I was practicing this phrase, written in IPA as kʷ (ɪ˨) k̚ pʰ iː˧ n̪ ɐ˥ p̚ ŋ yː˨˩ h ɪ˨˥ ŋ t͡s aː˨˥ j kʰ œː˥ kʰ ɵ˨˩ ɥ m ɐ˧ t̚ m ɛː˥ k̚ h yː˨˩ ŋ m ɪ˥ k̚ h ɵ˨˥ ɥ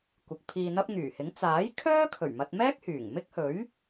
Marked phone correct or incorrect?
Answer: correct